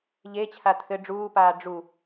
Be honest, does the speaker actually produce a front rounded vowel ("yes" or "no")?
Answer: no